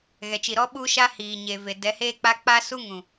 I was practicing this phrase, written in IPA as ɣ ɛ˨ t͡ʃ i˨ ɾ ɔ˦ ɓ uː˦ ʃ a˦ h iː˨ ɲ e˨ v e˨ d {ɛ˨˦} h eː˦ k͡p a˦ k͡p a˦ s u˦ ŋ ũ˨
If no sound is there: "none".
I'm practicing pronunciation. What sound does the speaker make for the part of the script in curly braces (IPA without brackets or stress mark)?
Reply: ɛ˨˦